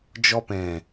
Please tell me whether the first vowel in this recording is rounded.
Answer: yes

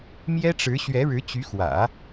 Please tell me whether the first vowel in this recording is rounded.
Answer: no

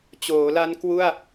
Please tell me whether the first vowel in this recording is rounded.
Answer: yes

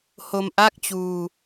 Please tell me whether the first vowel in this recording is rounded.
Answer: yes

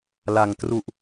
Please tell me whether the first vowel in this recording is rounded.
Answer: no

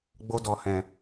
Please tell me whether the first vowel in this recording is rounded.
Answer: yes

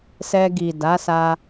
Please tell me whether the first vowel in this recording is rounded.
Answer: no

